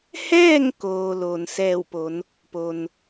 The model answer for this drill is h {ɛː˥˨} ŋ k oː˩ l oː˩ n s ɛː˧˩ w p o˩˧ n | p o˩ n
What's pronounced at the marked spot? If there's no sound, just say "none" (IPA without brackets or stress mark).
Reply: ɛː˥˨